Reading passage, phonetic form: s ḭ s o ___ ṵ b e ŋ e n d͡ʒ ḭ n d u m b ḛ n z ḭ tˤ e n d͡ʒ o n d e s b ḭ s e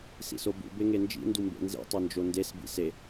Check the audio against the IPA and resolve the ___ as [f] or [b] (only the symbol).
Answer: b